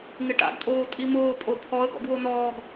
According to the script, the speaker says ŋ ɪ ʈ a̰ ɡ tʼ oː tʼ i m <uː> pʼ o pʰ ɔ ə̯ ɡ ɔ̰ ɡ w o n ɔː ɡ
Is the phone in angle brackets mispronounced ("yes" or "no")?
yes